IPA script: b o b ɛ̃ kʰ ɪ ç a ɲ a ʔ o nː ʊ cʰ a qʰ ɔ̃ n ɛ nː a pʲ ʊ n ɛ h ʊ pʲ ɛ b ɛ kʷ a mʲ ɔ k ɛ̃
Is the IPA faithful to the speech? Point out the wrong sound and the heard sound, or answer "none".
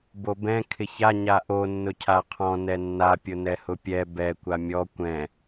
k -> kʷ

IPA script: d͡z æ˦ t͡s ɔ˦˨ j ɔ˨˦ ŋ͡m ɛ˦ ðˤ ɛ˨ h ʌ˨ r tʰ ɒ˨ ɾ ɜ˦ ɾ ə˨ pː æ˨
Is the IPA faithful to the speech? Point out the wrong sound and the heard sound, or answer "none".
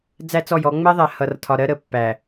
none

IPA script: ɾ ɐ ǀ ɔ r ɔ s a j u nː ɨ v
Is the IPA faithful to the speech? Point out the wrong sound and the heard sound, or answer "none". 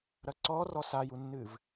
none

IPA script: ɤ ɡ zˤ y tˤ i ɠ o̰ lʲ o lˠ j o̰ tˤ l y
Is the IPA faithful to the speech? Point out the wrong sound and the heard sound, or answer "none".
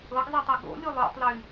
none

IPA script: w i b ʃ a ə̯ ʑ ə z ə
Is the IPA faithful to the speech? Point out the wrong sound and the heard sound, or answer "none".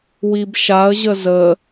none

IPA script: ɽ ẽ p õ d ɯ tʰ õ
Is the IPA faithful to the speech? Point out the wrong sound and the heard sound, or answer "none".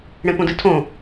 none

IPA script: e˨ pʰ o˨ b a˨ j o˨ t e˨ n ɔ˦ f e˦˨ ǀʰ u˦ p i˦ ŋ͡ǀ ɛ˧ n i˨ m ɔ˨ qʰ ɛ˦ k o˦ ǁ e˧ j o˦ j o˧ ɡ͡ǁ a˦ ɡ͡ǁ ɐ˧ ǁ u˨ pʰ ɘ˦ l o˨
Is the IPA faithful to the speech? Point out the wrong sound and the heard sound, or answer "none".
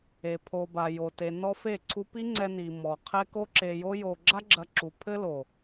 none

